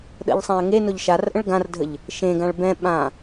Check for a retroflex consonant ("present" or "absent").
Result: present